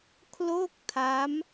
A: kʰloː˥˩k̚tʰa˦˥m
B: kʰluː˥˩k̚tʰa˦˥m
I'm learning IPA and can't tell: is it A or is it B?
A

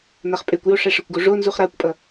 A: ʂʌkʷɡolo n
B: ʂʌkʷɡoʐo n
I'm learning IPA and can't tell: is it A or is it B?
B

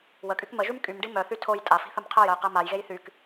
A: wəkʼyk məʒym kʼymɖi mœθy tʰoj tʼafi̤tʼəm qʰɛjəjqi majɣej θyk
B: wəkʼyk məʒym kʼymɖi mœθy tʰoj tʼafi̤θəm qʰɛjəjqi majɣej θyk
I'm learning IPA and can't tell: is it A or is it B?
B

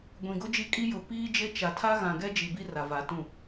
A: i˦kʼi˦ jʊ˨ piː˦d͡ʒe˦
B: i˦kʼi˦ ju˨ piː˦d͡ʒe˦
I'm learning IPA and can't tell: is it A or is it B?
A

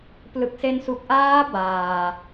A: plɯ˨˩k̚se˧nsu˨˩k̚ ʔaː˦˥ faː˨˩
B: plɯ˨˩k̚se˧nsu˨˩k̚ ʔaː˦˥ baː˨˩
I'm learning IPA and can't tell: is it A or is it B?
B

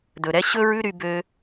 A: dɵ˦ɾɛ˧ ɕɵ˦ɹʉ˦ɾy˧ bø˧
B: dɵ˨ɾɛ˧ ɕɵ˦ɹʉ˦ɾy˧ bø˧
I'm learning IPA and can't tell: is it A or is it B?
B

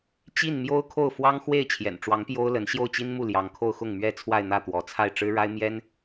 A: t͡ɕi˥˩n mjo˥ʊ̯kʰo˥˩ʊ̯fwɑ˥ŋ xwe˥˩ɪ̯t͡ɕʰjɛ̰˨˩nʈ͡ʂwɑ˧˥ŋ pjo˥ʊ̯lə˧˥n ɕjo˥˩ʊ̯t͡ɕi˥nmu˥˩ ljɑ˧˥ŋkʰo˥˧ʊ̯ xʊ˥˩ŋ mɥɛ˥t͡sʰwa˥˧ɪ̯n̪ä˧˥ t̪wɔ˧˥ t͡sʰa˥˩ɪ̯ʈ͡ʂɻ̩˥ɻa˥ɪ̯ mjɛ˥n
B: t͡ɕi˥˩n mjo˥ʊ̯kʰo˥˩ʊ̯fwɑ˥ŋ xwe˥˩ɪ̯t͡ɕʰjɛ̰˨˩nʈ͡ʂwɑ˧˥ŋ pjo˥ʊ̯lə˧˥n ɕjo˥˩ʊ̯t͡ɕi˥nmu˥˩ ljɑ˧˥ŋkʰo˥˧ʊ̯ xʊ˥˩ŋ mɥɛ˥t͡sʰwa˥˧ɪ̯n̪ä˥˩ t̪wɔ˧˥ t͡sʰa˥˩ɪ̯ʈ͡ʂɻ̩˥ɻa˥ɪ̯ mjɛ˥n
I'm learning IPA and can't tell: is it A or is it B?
B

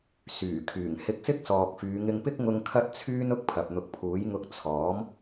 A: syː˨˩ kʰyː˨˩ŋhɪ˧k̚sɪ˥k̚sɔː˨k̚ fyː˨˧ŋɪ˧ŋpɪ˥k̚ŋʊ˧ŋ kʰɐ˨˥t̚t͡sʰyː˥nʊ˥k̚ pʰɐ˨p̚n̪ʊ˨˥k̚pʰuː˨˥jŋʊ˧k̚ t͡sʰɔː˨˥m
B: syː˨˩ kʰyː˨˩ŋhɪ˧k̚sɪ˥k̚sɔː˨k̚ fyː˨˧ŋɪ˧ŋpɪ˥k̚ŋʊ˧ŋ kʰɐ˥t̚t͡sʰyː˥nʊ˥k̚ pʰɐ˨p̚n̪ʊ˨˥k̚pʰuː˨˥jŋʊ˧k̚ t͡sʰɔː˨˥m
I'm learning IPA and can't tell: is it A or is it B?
B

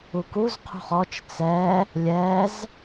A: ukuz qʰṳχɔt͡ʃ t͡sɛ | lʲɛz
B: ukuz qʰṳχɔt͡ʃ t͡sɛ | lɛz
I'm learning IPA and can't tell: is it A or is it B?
A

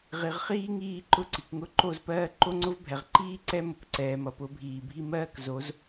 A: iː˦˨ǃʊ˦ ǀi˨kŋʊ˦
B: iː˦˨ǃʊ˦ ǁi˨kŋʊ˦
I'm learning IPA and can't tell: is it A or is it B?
A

